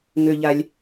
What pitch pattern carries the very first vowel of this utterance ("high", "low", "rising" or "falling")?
low